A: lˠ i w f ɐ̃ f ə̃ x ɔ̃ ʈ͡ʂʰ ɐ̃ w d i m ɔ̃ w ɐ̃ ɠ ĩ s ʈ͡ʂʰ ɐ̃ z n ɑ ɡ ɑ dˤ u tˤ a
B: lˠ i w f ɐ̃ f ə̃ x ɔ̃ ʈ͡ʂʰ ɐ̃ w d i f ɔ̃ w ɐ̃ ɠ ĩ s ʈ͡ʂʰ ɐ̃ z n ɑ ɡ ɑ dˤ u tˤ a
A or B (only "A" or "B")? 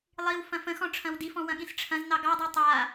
B